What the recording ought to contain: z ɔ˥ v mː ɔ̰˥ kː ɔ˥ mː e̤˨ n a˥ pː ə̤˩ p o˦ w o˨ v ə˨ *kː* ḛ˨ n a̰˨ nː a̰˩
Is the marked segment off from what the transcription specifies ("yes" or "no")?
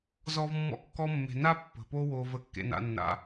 no